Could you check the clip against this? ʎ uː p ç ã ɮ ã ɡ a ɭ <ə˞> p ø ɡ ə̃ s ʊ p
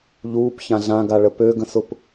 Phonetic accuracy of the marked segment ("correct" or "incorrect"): incorrect